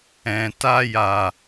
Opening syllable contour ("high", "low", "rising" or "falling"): low